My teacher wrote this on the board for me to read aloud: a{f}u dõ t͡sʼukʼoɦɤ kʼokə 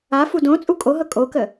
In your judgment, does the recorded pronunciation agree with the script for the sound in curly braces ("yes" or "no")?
yes